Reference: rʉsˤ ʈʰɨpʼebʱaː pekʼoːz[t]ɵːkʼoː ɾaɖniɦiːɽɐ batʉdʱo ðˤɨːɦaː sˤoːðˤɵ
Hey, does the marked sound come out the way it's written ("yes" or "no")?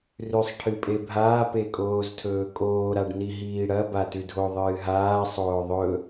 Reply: no